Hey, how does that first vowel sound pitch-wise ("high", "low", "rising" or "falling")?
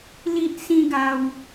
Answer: high